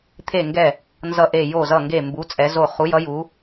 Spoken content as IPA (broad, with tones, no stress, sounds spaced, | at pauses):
t̪ʰ e˧˩ ŋ ɡ ɛ˧˩ | n z ʌ˧˩ ʔ e˧˩ j o˧˩ z ʌ˧˩ ŋ ɡ e˧˩ m b u˩˧ t͡sʼ ɛ˩˧ z o˧˩ χ u˩˧ j ʌ˩˧ j u˩˧